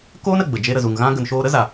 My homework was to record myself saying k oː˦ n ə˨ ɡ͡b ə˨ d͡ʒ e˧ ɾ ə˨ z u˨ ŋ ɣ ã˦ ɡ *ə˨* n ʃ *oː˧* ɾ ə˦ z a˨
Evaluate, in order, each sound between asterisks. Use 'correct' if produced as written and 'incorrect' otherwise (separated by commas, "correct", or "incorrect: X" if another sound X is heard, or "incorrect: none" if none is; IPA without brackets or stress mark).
correct, correct